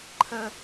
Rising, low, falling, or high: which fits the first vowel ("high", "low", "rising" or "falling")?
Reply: high